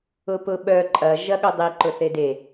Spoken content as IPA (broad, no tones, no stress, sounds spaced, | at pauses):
ʊ p ʊ ɓ œ ǃʼ ɐ ʒ ɐ ɠ ʊ dˤ i ǃ ʊ θ e d e